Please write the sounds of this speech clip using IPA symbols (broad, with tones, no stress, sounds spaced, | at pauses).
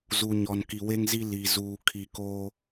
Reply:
z u˨ ɲ ɔ˨ n k i˨ w e˦ ŋ z i˦ l i˨ z uː˨ kʰ i˨ k o˦